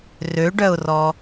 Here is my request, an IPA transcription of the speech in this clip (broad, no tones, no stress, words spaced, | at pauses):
røɖœʊ̯rɔ